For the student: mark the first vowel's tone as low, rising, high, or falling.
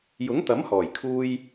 rising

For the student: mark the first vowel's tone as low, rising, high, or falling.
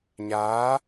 rising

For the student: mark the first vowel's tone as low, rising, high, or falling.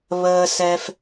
high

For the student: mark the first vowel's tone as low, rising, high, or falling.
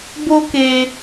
high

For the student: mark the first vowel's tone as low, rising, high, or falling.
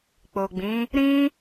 low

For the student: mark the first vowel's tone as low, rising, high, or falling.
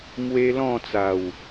high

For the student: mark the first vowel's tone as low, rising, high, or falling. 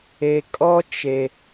low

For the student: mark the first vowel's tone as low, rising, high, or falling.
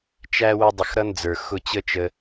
high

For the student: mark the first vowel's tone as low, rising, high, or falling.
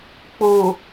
low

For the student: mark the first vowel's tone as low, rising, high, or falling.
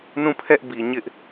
falling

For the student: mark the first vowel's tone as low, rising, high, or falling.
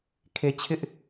low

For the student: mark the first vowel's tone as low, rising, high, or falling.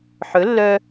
rising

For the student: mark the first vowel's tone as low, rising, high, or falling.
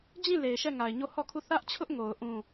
falling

